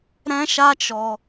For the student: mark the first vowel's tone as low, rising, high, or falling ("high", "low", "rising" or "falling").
high